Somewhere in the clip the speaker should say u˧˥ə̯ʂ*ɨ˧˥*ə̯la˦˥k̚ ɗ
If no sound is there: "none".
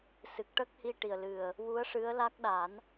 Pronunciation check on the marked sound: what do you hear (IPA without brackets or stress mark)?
ɨ˧˥